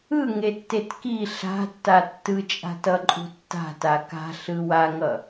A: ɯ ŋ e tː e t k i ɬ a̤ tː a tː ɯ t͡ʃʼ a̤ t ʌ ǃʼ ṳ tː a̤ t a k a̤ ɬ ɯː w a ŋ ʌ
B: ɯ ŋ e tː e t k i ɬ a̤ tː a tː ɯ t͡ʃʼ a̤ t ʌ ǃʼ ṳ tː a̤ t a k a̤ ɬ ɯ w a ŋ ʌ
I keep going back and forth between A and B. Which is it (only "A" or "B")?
B